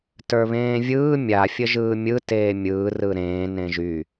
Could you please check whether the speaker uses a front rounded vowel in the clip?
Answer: yes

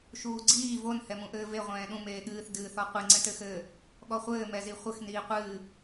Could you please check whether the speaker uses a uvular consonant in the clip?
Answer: yes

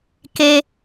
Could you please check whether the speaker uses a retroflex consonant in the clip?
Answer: no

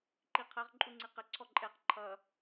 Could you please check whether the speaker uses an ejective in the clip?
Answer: yes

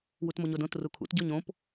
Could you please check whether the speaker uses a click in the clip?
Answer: no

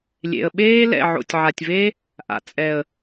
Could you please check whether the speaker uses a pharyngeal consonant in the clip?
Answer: yes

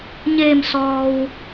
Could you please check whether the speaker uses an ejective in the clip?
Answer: no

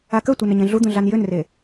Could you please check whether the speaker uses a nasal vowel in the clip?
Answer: yes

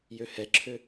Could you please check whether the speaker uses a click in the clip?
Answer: yes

